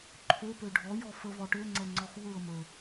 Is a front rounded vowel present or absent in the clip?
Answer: present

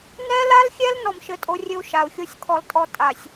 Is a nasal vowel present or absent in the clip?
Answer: absent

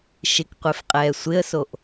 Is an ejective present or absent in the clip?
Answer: present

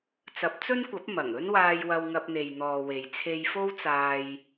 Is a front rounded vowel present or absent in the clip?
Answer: absent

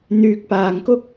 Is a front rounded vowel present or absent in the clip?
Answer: present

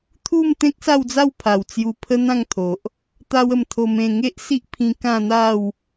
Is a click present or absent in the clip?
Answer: absent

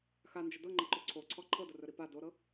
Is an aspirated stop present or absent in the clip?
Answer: present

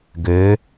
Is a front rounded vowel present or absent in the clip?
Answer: present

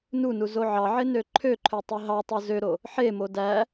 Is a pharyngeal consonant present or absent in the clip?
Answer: present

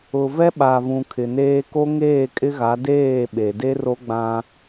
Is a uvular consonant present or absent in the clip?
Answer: absent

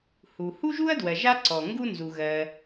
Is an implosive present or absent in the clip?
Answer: absent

